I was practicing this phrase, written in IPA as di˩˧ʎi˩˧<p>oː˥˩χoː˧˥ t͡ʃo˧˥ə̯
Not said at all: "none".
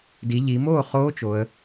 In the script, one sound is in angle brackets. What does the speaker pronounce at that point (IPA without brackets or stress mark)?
m